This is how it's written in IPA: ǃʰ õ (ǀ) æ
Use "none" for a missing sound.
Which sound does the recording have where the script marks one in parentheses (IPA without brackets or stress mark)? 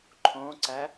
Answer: ǀ